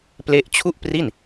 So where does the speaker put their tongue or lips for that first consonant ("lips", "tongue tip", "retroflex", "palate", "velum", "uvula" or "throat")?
lips